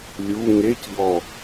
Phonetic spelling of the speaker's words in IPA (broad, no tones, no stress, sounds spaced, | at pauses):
lʲ u ŋ e c ʎ ɔ